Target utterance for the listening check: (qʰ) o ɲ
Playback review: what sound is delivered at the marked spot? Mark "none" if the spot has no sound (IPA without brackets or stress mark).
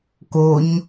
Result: k